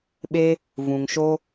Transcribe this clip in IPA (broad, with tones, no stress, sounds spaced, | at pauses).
ɓ e˦ | v ũ˨ ŋ ʃ o˦